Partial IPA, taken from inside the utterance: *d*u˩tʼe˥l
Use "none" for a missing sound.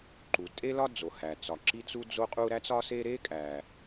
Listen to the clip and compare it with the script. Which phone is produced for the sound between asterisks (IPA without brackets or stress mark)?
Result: ǃ